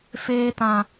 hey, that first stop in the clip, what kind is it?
plain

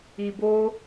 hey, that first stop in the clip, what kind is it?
plain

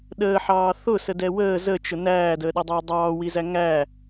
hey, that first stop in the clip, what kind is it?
implosive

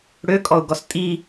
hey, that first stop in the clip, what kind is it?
ejective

